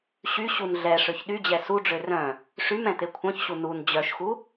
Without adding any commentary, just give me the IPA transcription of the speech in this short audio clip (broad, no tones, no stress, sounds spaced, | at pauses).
ɕ y ɕ u n ɮ ɛ ʂ ø ç ɗ y d͡ʑ ɛ s u ɖ͡ʐ ø r œ̃ | ʂ y m ɛ̃ t̪ e kʷʰ œ̃ ç ɕ u n u n d͡ʑ œ ʃ x u